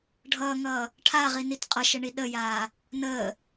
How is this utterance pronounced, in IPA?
ɖʱ ʌː ŋ ʌː | ʈʰ a ʁ i n i t qʼ ʌ ʃ ə ɳ i ɗ ə j aː | n əː

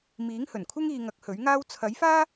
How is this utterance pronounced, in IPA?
m iː˨˥ ŋ h ɵ˨˩ n kʷʰ ɪ˥ ŋ iː˧ ŋ ɐ˨˥ k̚ h ɵ˨˥ ɥ ŋ aː˥ w t͡sʰ ɐ˨˥ j f aː˥

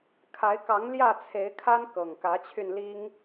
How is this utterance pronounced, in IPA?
kʰ a˨˦ ɪ̯ k ɑ˨˦ ŋ l j ä˥˨ t͡sʰ e˨˦ ɪ̯ kʰ a˦ n k ɤ˨˩ ŋ k ä˨˦ t͡ɕʰ y˧ n l i˦ ŋ

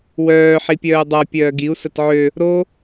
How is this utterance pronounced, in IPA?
w œː ħ i pʲ œː u̯ dˤ a pʲ œː ɡ i u̯ s ə t ʕ ø | ɾ o

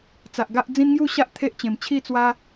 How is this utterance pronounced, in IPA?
t͡s a˨ ʔ ɡ a˦ ʔ d͡z ĩ˦ n ŋ j u˥˧ ɕ a˦ ʔ t̪ʰ e˦ ʔ t͡ɕ ẽ˨˩ m t͡ɕʰ i˥˧ t͡s w a˦

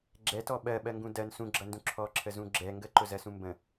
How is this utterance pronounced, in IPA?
ɡ͡ǁ ɛ t ɔ ɓ ɜ ɓ ɜ ŋ ɡ ũ d ɜ n s ũ ɡ͡ǁ ʌ n d ũ ǁʰ ɔ ǁʰ ə z ũ ɡ͡ǁ ɛ ŋ ɡ ə ǃ ʊ z ɜ s ũ m b ə̃

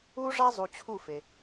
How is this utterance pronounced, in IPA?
u˦ ʐ a˦ zˤ u˨ t͡ɕʰ u˦˨ f e˨

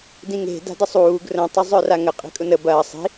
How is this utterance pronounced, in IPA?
d ĩ ŋ e̤ d a̤ d ə sˤ uː ɡ r ə̃ tˤ o zˤ œ r a ŋ ə qʼ i̤ kʼ ʊ n ə b ɐː sˤ i̤

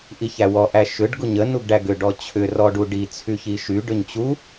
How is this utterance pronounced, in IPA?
ʔ i ç æ w ɔ ʔ æ ʃ ʏ ɖ ɡ u ɲ ə n u ɡ ɖ æ ɡ ʏ ɖ ɔ t͡ɕʰ ʏ r ɔ ɖ u ɖ i t͡sʰ y ç i ʃ y ɖ ʏ ɲ t͡ɕ u

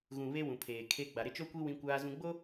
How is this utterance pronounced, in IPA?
ɣ ũ˨ β e˦ w ũ˨ pʰ eː˨ kʰ e˦ ɡ͡b a˨ ɾ ɪ˦ t͡ʃ o˦ kʷ i˦ w ĩ˦ kʷ aː˦ z ũ˦ ɡ͡b o˦

